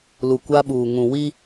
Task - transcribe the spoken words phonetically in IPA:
lu˨kʷa˦ɓuː˨ ŋũ˨wi˦

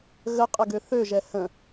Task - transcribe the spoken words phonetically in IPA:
ɣəqʼəɡø θøʒɛ hə̃

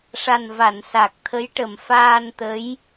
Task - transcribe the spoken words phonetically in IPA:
ʂa˨˩nva˨˩˨n sa˨˩k̚t̪ʰə˧˥jʈə˨˩m faː˧nt̪ə˧˥j

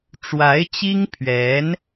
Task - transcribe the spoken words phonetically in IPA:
ʈ͡ʂwa˧˥ɪ̯t͡ɕi˥ŋpʰɥɛ˧˥n

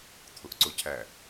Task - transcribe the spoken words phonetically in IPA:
t̪ʰʊʔǀʊcʰæ

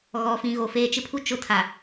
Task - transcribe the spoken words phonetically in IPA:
ɣɔ˨fĩ˨ɣo˨ feː˨t͡ʃɪ˦pʰu˦ t͡ʃʊ˦tʰa˨

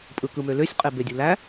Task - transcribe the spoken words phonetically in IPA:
pʼɯkɯmøløsʲ qʼebedʲulæ

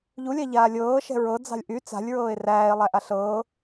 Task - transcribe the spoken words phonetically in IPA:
ʎulʲa ʎaːlʲɤː ʃɛ̤ɹɤd͡zɑ̤lʲ ʔy t͡sa̤lʲɹɤːe̯ ræːe̯ lˠæʔaɬɤː

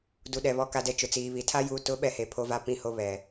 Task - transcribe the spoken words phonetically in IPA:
du˨ɗɛ˨ βɔ˨ka˨dɛ˨ t͡ʃʊ˨t͡siː˨βi˨tʰa˦ ju˨tʊ˨˦ ɓɛ˦he˨pʰo˦va˦ pĩ˦˨ho˦ βɛ˨

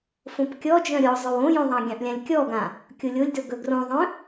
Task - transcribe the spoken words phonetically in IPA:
fõpkʲɔd͡ʒœ̃ ɾʲɔ zˤœwõjõðˤɑ̃ ɡʲɑ̃ʔlʲãlʲkʲɔɡã | kʲolʲolʲdɵ ɡɵɡrõðˤœ̃

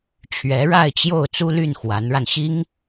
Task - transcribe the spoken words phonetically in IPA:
t͡ɕʰɥɛ˧˥ɻa˥˧ɪ̯t͡ɕjo˥˩ʊ̯ t͡su˥ly˥˩nxwa˧˥nɻa˧n ɕi˥ŋ

